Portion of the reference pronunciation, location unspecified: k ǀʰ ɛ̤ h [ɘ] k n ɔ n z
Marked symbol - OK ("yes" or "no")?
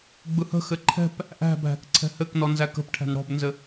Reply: yes